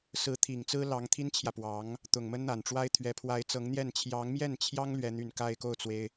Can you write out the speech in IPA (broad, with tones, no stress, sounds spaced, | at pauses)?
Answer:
s ɹ̩˧˥ t̪ʰ i˨˩ ŋ t͡s ɹ̩˥ l ɑ˧˥ ŋ t̪ʰ i˥ n t͡ɕʰ j ä˨ p w ɑ˧˥ ŋ | t̪ ʊ˨˩ ŋ m ə˥ n n̪ a˨˩ n ʈ͡ʂ w a˥ ɪ̯ t̪ʰ ɥ ɛ˧˥ pʰ w a˧˥ ɪ̯ t͡s ɤ˧˥ ŋ n̪ j ɛ˥˩ n t͡ɕʰ j ɑ˧˥ ŋ m j ɛ˥˩ n t͡ɕʰ j ɑ˥ ŋ l ɥ ɛ˥ n̪ y˥˧ n k a˥˧ ɪ̯ k o˥˩ ʊ̯ t͡s w e˩ ɪ̯